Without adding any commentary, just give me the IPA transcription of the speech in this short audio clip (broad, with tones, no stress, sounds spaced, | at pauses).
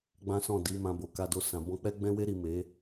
ɡ͡b ã˦ s ɔ̃˦˨ d i˨˦ m ã˧ b o˨ k a˧ d o˧ s ã˨ b ɔ̃˧ k͡p ɛ˧ ɡ͡b ɛ̃˧ w e˧ ɾ i˨ m e˨˦